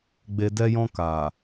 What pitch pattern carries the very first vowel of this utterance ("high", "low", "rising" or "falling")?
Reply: low